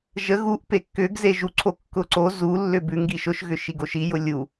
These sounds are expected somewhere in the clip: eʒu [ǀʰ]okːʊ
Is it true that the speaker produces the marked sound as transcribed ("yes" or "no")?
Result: yes